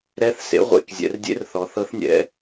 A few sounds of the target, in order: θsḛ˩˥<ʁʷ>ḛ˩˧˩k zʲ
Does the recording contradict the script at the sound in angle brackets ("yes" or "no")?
no